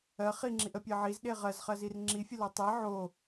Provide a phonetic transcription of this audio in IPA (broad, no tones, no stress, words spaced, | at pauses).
ɜ χiŋ͡ǁiʔəpʲɜ ʕizɗe ʁɜzχɜzir ŋ͡ǁifʲəlo tˤe ʕo